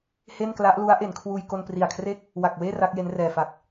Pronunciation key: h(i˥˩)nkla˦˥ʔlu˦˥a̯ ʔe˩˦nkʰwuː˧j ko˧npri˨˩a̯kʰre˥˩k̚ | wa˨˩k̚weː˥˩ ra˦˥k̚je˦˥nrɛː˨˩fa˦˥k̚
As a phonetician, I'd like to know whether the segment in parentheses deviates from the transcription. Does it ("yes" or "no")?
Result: yes